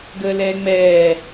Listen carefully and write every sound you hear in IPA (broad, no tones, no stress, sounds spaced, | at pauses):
ɡ əː l ɛː ŋ͡m ɛː